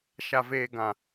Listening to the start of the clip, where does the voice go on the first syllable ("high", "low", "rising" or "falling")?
low